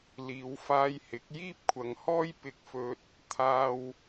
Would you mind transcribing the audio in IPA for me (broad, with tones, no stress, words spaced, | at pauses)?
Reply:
liː˨˧wfaː˧jhɪ˨˥k̚ jiː˥p̚kʷʰɐ˨ŋhɔː˥j pɪ˧k̚fɵ˧t̚ | t̪ʰaː˧w